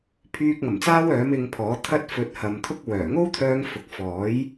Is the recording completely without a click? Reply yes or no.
yes